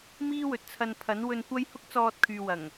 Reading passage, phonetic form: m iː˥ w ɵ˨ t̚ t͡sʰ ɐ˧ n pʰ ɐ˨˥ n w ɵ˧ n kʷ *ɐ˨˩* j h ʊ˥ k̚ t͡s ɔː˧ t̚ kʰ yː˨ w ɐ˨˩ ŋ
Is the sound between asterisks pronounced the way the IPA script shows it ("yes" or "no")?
no